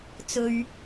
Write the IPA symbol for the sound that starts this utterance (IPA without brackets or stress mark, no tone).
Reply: t͡s